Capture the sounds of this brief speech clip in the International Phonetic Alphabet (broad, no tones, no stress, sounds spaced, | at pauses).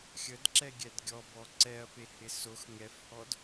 xʲ ə d ǁ ɛ ɡʲ ɛ d ɡʲ ɔ b ɔ ǀ ɛ ɐ̯ p e h ɪ s o x ŋ ɛ f h ɔ d